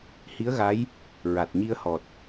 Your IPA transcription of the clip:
h i˧˥ ə̯ ɣ a˧˥ j | ɹ a˨˩ t̚ ɲ i˧ ə̯ h ɔ˨˩ t̚

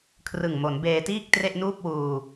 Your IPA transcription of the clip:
kʰ r ɯ˨˩ ŋ m o˩˦ n b eː˧ t iː˥˩ k̚ t r e˥˩ ʔ n uː˥˩ p̚ w uː˧

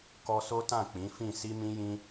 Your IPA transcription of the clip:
k ɔ˧ s o˦ t ã˦˨ k͡p ĩ˨˦ f ĩ˦˨ s i˧ m ĩ˧ j ĩ˧

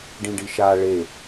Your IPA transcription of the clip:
ɖ ĩ ɖ i ʃ a ɭ e

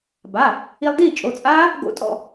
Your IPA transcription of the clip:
b a˩˧˩ | i˧ lˠ d iː˥˨ t͡ʃʼ o˩˧˩ t͡sʼ aː˦˥ | ɡ o̰˦˥ tʼ ɔ̰˥˨

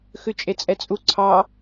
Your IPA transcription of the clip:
x ʉ t͡ʃʼ e t͡sʼ ɛ t͡sʼ u ǀʰ ɑ

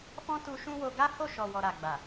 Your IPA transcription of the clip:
f ɔ̃˦ t u˧ ʃ ũ˦ w o˧ ɡ a˦ h o˦˨ ʃ ɔ˨ w ɔ˨ ɾ a˨ ɡ͡b a˨

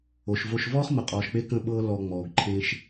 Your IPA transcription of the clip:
o˨ ʃ v o˧ ʃ v ɔː˦ χ m ə˨ qʼ ɔː˨ ʃ k͡p e˧ k ə̃˦ ɓ ɤː˦ l ɔ˧ ŋ͡m ɔː˨ ɡ ǃʰ ẽː˦ ʃ

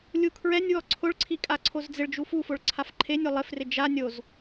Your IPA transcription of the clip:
lʲ u kʰ ɹ ɛ nʲ w ɔ ǀʰ ʊ ɭ ǀʰ i kʼ a ǀʰ o z d͡z ɪ ɭ d͡ʒ u f u f ʊ ɭ ǀʰ a f ǃʰ e nʲ o lˠ ɪ f r ɪ d͡ʒ a nʲ o z

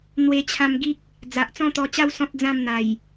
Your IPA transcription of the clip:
n̪ w e˧ t͡ɕʰ ã˧ m ɡ i˦ k̚ | d͡z a˨ ʔ t͡s ɔ̃˥˧ t̪ ɔ˧ t͡ɕ a˦ w s ɔ̃˦ t̚ d͡z ã˥˧ m n̪ a˨˩ j

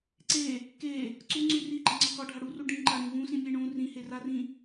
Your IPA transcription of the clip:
ǀ e | k e | ǀ u ŋ͡ǀ ʉ r i ɡ͡ǃ a ŋ͡ǀ ɒ k ɒ ɖʱ a ɽ u r u ɖ ĩ ǃ a ɾ ĩ v ũ s ĩ mʲ e ɳ ũ r ĩ h e r a r ĩ

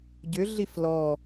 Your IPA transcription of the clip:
ɟ ʏ ɮ i f l ɔ

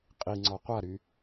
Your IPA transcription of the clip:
qʼ i ŋ͡ǀ ɔ qʷ a ɾ y

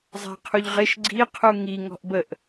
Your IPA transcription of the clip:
zˤ a̤ qʰ u ʎ ʁ ɪ ʃ ɡ͡ǀ i qʰ u ŋ i ŋ ɔ̤ ʔ b ə ʔ

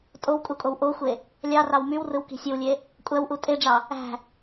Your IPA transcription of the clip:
tʼ o w kʼ u kʼ o w ʔ o xʷ e | lʲ ɑ r ɑ w m y w r ɯ w k i̤ sʲ ɯ w lʲ e | kʷʼ æ w ʔ u tʼ e ɖ͡ʐ ɑ | æ̤

